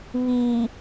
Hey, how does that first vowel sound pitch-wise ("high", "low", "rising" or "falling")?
low